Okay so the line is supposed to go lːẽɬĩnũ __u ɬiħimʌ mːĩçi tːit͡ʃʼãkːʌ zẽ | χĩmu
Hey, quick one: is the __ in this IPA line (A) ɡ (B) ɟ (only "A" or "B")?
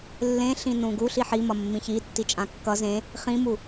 A